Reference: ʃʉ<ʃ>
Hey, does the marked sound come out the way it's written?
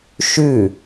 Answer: no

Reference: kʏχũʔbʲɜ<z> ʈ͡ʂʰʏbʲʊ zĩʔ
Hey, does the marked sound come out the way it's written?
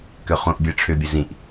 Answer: no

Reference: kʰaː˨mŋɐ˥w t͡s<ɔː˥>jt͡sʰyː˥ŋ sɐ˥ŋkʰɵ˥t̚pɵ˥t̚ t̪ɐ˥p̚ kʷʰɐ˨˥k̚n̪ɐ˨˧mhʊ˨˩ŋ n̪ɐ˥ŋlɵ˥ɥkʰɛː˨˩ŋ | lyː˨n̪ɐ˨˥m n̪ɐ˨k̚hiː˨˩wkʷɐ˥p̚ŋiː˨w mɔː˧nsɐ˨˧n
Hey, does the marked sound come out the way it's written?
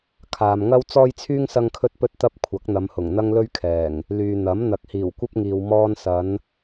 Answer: yes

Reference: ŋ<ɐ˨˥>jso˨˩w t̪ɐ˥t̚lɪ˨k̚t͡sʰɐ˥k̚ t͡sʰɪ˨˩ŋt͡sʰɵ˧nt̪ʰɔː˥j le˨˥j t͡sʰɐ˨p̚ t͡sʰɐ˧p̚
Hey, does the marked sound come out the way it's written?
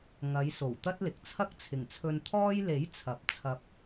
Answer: no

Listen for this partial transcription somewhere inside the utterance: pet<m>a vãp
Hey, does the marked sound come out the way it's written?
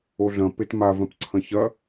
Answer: yes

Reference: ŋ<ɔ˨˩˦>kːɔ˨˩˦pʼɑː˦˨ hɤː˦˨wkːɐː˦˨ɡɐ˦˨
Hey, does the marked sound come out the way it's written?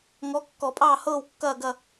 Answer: no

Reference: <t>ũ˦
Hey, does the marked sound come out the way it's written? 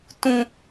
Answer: yes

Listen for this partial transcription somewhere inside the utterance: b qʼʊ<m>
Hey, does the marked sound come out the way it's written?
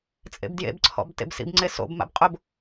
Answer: no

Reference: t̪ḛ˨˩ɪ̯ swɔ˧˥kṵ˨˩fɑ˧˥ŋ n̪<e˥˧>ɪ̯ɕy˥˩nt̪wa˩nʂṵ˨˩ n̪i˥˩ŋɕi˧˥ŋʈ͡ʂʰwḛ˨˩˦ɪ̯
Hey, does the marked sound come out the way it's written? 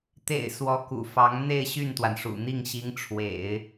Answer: yes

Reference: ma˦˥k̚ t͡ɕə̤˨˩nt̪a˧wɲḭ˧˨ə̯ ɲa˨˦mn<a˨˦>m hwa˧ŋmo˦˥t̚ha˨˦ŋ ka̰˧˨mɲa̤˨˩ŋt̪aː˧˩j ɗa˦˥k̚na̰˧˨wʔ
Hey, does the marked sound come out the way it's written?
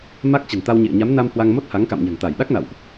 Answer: no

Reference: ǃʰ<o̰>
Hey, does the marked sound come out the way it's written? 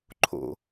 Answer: yes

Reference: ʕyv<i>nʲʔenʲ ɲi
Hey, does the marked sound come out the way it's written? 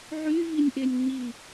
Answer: yes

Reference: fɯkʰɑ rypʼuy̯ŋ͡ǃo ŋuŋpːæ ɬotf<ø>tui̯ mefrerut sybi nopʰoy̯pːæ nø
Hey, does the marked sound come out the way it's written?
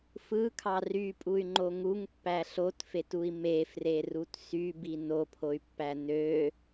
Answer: no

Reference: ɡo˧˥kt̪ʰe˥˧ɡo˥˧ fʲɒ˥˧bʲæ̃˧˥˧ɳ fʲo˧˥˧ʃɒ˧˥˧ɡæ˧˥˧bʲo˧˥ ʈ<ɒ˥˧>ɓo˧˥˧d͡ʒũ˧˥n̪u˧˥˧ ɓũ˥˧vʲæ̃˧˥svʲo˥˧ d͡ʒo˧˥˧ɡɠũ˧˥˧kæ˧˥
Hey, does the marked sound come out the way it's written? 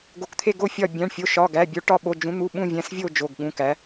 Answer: yes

